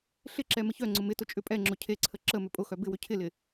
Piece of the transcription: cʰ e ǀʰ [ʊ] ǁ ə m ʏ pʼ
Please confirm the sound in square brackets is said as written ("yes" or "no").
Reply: no